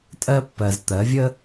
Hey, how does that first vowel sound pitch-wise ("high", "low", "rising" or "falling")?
high